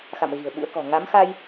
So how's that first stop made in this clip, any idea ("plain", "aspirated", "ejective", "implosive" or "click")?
implosive